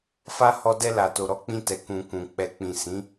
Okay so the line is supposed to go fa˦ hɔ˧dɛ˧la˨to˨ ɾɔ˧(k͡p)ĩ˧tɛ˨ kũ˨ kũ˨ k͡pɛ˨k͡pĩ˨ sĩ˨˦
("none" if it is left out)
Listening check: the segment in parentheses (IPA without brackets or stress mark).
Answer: k͡p